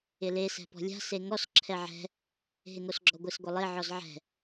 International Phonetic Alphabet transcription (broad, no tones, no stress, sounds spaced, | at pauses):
ɪ l e s ɛ̤ p ɔ̤ lʲ a̤ s e ŋ ɔ s ǁʰ ɛ ʕ ɛ̤ | ɦ ɪ ŋ o s ɡ͡ǁ ɔ ɡʷ ɪ s ɡʷ ɪ lˠ e ʕ ɔ z ʕ ɛ̤